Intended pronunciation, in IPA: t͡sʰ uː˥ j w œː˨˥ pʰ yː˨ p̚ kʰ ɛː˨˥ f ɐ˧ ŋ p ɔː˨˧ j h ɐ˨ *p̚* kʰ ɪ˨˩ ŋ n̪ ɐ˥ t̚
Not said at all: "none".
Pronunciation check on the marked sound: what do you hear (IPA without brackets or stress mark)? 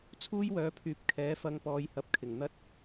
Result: p̚